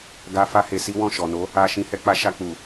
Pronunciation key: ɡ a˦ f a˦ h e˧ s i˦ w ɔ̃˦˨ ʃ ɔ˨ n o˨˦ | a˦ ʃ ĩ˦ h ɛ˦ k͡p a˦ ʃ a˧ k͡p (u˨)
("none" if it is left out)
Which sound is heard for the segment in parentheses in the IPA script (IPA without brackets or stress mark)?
u˨